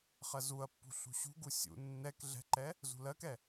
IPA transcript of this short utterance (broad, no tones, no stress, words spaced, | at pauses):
χɜzuɐ̯pːṳ ɬṳɕṳɡu sʲṵ nːɛk ɮɛ̤ǃɛ | zṳlɜkɛ